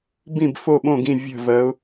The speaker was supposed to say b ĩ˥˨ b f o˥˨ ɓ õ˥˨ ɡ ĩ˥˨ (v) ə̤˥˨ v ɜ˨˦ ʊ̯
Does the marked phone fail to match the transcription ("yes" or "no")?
yes